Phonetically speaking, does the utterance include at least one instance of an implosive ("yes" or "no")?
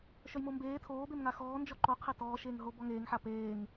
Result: no